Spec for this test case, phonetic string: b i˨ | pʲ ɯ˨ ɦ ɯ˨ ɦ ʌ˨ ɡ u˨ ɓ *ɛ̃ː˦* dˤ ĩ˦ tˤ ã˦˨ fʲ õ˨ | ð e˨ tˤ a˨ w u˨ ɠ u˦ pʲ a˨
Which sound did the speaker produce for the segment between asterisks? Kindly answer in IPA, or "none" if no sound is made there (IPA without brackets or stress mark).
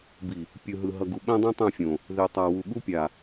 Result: ɛ̃˦